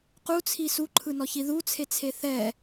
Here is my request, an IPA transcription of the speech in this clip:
q u t͡sʰ i s u ǃʰ ɯ n ɔ ç i ð u t͡sʰ e t͡sʰ e θ ɛ

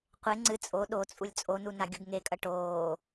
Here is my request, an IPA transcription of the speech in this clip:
qʷ e ŋ͡ǀ ɨ t͡sʼ o ɗ o t͡sʼ u lʲ t͡sʼ o n u n a ɡʲ u ɡ ŋ e kʼ ɐ ʈ oː

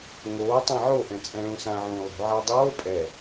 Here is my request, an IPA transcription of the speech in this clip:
ŋ oː tˤ ĩ ʕ o ʔ ɛ̃ t͡sʼ ɛ̃ ɭ ũ s ã ʕ ũː lˠ ṳ ʕ a dˤ oː pʼ ɛ

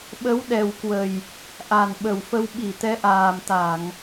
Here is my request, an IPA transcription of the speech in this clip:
ɓ ə˨˦ w ɗ ɛ˨˩ w k w ə˨˩ j | ʔ a˨˩ n ɓ ə˨˩ w f ə˧ w ɓ i˧˩ t̪ ɛ˨˦ ʔ aː˨˩ m t̪ a˧˩˨ ŋ

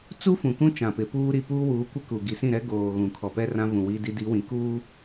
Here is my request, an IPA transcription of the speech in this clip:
t͡s u˦ f ũ˨ k ũ˦ t͡ʃ ã˨ p ɪ˨˦ p uː˦ ɾ i˨ p uː˦ w uː˨˦ kʷ ɪ˦ k u˨ ɡ i˨ s ĩ˦˨ ɾ ɛ˦ ɡ oː˨ ɣ ũ˨ kʰ ɔ˨ p ɛ˦ r ã˦ v ũ˨ w i˦ d i˦ d i˨˦ w ĩ˨ k uː˦

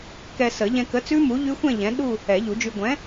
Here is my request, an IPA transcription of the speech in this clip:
k ɛ˧ s ə˨˩˦ ʎ ɛ̃˧ k ə˨˥ t͡s ʉ˦˥ m u˨˥ ʎ ʉ˦˥ xʷ ɛ̃˥˧ ʎ ɛ̃˨˥ ɗ u˥˧ | ɛ˨˩˦ ʎ u˨˩˦ d͡ʒ ʉ˧ ɡʷ ɛ̃˨˥

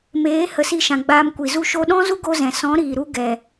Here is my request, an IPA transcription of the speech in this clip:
m eː˨˦ h ə˨˦ s i˧ ʃ ã˨ ɡ͡b aː˧ m kʷ i˨ z u˦ ʃ o˧ ɗ ɔ̃˦ z u˦ ɡ o˧ z ɛ̃˨ s ɔ̃˨˦ ɾ iː˨ ɾ u˧ ɡ ɛ˨

